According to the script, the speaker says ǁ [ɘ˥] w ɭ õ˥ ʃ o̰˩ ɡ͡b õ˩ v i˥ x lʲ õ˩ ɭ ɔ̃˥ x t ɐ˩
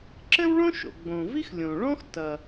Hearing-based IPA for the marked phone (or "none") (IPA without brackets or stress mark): ɘ˥